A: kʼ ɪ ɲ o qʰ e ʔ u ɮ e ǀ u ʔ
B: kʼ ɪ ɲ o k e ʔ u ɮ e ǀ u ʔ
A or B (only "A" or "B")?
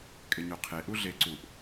A